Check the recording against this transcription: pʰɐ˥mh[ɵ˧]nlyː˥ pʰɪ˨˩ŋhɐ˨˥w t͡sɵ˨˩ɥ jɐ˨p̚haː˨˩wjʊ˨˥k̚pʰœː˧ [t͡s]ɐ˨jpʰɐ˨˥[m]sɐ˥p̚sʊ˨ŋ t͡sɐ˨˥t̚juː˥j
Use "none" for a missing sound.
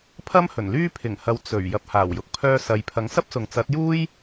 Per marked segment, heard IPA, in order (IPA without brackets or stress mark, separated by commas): ɵ˨˩, s, ŋ